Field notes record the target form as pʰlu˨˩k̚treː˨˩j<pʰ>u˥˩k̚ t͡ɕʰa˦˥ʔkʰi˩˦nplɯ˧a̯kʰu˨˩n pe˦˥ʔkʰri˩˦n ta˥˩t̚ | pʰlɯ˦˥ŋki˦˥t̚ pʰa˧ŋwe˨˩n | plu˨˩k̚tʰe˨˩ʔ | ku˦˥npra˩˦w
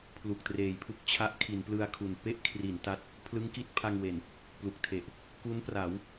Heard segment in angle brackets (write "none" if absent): pʰ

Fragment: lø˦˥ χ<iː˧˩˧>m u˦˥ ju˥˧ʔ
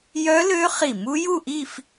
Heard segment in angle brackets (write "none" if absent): i˧˩˧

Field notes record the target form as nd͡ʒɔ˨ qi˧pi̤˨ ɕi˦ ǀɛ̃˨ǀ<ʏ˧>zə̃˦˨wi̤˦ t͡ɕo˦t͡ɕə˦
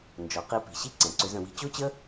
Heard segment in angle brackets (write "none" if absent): ʏ˧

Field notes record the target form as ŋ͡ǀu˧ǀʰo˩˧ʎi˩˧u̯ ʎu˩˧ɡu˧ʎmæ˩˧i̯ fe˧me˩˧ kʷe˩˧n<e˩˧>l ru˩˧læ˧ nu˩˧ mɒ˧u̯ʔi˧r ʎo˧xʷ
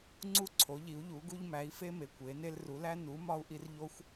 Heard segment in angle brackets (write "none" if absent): e˧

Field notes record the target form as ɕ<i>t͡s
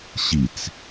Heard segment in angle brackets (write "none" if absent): i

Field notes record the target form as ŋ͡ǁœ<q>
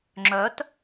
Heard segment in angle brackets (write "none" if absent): t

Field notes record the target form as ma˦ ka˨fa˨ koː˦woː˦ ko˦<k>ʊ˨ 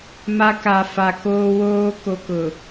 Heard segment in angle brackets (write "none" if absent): k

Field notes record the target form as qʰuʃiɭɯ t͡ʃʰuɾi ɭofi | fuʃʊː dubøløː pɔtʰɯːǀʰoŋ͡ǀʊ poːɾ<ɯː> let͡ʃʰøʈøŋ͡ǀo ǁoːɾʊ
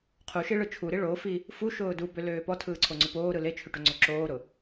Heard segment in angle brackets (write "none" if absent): ɯ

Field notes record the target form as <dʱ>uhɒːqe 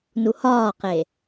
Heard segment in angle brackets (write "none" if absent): n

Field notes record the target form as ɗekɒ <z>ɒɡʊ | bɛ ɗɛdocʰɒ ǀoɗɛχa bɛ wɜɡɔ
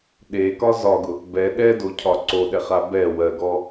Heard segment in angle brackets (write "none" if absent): z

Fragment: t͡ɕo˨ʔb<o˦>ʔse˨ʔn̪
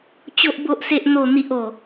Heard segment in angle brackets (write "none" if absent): o˨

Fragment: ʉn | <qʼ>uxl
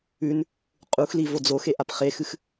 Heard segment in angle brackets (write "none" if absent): qʼ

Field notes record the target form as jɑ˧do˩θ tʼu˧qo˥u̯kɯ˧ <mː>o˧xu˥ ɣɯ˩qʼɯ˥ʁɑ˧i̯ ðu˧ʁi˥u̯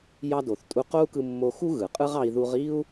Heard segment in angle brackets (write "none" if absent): mː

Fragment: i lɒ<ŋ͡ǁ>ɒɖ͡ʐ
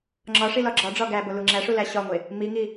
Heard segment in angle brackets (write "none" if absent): ɡ͡ǁ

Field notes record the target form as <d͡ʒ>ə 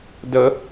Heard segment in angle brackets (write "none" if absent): d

